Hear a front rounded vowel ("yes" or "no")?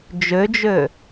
yes